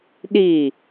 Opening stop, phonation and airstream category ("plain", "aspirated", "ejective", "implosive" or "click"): implosive